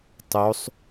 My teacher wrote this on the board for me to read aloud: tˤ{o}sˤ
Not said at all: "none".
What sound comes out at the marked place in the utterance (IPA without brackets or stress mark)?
o